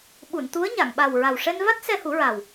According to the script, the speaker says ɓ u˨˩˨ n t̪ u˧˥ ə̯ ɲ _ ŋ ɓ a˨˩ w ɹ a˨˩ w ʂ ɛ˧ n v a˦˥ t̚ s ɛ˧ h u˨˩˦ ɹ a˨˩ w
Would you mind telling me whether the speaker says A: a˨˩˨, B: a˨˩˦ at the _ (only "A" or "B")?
A